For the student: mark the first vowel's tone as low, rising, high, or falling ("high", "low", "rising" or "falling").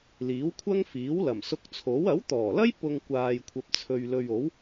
rising